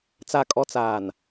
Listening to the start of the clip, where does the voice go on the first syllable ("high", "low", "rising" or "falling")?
low